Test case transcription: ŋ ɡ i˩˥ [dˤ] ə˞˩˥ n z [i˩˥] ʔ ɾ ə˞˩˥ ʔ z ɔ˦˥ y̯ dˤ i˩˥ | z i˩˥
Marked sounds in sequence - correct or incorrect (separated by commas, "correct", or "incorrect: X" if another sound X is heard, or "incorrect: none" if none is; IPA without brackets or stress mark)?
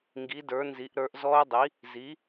incorrect: d, correct